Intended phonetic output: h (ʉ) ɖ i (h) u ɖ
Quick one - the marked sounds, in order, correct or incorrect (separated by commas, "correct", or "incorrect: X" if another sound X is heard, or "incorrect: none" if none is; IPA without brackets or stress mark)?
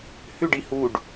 correct, correct